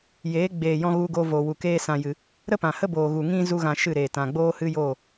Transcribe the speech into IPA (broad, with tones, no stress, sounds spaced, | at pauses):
j eː˨˦ ɡ͡b eː˨ j ɔ̃˧ ɣ u˧ ɡ oː˧ v oː˨ w u˨ k eː˧ s ã˨ j ɨ˨ | ɾ ə˦ p ã˨ h ə˦ b oː˨ ɣ u˨ ŋ ĩ˦ z u˦ ɣ ã˧ ʃ ɨ˦˨ ɾ eː˨ t ã˨ ɡ͡b oː˦ h ɨ˦ j oː˦˨